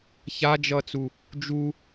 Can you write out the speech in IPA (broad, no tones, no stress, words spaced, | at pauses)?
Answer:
çad͡ʒʌːt͡su | d͡ʒu